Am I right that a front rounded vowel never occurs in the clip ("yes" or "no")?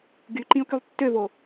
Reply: no